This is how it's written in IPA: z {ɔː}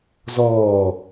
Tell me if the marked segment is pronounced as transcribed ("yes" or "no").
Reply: yes